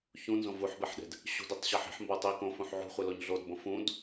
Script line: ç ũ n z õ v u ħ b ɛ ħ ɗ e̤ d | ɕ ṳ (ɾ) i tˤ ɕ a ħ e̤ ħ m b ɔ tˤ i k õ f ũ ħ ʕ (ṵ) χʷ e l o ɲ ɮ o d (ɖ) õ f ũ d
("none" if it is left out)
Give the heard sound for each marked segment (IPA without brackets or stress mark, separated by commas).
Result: d, ṳ, b